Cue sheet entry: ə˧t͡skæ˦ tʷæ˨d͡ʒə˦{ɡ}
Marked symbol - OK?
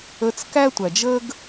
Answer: yes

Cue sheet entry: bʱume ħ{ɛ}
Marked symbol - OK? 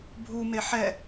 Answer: yes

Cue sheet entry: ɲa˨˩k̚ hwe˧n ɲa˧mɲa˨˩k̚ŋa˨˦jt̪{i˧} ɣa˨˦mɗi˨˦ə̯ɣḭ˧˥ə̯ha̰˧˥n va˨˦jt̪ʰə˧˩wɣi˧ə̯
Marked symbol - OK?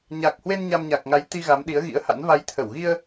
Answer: yes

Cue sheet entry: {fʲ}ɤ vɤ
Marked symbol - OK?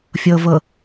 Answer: yes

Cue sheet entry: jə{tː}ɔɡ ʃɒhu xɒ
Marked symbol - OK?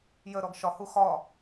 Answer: no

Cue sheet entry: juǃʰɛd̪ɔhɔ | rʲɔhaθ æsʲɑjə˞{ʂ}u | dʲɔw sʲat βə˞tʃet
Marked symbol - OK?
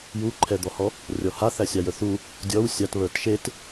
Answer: no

